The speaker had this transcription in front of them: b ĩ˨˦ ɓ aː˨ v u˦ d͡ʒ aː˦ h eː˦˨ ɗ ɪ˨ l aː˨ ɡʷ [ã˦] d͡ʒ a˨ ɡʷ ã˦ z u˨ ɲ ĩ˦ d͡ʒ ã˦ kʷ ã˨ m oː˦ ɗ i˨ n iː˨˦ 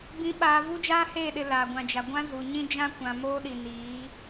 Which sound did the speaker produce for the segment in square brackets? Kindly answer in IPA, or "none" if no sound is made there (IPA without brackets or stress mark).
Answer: ã˨